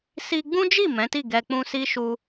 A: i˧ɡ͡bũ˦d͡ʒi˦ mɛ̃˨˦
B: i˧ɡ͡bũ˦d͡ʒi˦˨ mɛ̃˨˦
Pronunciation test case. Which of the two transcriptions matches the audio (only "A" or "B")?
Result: B